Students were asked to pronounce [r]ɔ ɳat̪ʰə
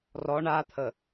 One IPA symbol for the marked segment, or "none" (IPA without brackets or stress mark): r